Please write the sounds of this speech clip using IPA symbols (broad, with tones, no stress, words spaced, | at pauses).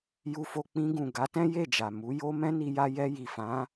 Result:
ju˧fo˧ k͡pĩ˧ɡũ˨ ɡa˨˦tɛ̃˦ je˦˨d͡ʒa˨ mu˨˦ jo˦ mɛ̃˦ni˧ja˧ jɛ˧ ji˨fã˨˦